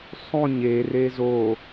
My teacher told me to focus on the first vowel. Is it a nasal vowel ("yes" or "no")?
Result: yes